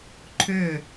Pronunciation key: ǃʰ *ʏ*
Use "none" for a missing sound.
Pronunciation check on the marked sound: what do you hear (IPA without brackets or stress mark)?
ʏ